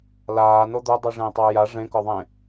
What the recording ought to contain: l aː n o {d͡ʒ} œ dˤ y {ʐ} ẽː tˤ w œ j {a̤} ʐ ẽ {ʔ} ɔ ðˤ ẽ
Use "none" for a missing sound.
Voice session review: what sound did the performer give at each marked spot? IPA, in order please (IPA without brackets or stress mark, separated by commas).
d̪, ʐ, a, k